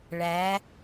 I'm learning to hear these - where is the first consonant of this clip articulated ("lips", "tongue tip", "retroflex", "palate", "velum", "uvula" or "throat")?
retroflex